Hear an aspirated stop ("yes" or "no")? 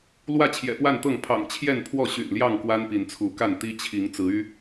yes